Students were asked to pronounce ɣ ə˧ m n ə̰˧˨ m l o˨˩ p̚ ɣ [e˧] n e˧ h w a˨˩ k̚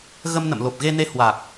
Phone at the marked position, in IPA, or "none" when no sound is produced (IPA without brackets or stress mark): e˧